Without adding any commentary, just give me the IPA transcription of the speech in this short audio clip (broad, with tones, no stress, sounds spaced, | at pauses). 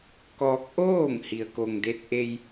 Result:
k ɔː˧ k̚ ʔ oː˥˨ ŋ h i˧ ə̯ k o˧ ŋ d e˧˥ t̚ ʔ e˧ j